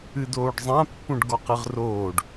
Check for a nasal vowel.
present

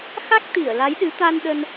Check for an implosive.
present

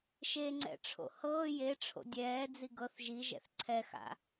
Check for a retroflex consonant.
present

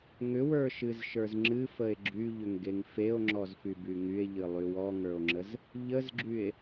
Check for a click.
present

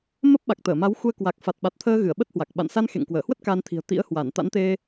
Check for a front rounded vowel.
absent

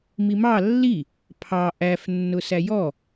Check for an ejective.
absent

